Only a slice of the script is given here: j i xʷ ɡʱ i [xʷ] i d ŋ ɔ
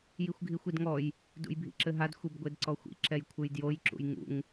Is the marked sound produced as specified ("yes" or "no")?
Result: yes